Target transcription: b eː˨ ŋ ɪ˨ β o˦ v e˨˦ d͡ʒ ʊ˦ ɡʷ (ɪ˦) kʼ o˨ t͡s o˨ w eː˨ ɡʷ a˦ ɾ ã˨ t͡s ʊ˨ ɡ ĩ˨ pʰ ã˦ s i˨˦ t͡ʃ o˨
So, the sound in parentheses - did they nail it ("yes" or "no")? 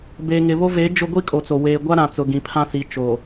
no